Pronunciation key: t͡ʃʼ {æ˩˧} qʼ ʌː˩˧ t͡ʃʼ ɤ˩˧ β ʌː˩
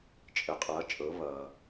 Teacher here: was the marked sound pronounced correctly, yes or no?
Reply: no